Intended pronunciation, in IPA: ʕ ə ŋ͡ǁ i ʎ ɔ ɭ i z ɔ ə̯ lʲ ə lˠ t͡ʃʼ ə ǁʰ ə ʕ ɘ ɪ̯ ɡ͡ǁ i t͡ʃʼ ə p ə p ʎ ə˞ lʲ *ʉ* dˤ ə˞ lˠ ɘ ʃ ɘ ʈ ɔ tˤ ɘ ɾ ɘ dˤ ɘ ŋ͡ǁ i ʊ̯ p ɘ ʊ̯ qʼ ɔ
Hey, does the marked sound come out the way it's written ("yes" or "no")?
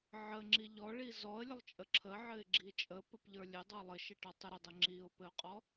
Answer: no